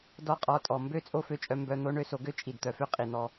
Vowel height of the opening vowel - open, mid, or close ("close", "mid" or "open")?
mid